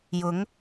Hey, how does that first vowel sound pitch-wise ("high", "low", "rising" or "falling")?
rising